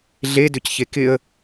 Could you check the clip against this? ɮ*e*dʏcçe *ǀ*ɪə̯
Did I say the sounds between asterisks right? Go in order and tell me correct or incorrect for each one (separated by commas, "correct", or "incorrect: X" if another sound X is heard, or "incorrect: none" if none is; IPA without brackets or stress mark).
correct, incorrect: k